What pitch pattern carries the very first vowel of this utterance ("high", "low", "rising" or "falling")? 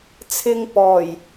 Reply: low